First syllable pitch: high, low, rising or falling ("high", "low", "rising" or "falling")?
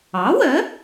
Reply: rising